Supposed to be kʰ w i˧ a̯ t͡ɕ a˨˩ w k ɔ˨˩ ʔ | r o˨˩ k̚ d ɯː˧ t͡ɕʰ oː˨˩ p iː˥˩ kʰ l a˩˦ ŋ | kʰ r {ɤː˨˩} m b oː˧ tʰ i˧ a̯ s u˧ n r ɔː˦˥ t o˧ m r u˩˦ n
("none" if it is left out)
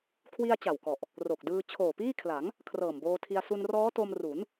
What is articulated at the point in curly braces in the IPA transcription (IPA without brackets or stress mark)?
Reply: ɤː˨˩